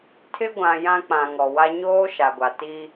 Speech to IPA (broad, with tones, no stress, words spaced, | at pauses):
tʰɪ˦ɡʷã˨ jã˦k͡pã˨ ŋɔ˨wa˦ ɲoː˦ ʃa˨ɡʷa˨ ti˦